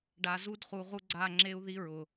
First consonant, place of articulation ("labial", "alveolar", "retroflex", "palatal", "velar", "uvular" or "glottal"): retroflex